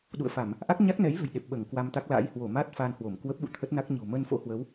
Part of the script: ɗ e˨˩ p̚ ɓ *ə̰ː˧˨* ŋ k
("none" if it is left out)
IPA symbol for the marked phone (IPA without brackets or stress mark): əː˧˩